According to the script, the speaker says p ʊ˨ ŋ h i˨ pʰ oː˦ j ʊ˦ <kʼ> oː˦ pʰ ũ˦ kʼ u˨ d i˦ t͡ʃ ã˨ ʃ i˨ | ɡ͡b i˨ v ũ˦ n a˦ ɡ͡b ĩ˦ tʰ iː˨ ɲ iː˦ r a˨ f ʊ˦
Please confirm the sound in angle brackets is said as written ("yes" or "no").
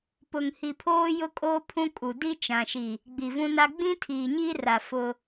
yes